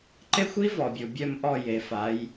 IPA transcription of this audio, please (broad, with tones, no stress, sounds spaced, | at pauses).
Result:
ǃ e˦˥ xʷ i˦˥ v ɔ˩ bʲ u˩ bʲ œ˧˩ m ʔ ɔ˧˩ j e˩˧ f a˩˧ j